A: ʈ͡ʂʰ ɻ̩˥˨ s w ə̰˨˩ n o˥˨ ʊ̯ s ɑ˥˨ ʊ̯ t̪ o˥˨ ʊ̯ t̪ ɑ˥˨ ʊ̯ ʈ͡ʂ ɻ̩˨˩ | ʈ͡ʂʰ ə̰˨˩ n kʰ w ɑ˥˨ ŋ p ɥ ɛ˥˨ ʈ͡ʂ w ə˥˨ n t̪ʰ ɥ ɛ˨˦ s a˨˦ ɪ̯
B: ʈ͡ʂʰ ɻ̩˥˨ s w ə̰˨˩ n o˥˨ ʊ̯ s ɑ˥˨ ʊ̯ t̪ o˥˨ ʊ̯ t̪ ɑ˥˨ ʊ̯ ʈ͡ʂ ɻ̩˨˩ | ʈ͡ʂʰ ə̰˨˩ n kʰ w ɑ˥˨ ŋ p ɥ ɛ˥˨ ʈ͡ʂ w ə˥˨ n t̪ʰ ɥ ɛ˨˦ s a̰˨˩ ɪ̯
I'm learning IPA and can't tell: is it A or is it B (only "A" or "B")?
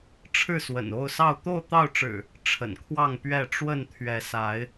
A